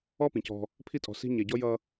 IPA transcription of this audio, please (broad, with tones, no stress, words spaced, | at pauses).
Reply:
ɔ˦pĩ˨cɔ̤˧ | pʰi˧tʼɔ̤˨ si̤˧ɲɛ˨ ɟɔ˧jʌ˧